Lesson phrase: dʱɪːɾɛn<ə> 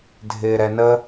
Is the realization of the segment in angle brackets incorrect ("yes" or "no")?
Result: no